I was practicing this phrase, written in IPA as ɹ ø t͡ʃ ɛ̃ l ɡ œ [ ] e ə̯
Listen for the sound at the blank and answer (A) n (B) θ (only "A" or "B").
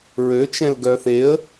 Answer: B